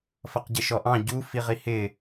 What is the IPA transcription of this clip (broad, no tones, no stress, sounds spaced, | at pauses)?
f ʌ q ɟ ɪ ʃ ɔ ʔ ɑ̃ ɟ u f i ʁ i h ɪ